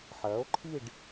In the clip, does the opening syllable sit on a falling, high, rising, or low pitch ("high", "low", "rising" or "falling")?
rising